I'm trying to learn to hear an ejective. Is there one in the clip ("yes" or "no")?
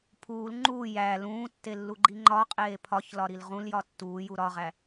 yes